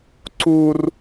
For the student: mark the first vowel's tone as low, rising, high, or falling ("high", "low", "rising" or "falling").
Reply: high